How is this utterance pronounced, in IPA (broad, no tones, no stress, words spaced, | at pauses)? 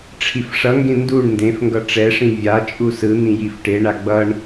ʈ͡ʂʰifʂʌŋɡẽ nduɳ ndẽfŋɡʌ ʈ͡ʂɛʂĩ vʲat͡ʃʼu sɯn̪ĩ jifʈeɳa ɡ͡bʌɳ